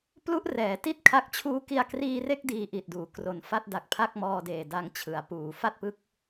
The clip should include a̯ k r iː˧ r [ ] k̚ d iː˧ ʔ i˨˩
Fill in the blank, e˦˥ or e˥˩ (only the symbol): e˥˩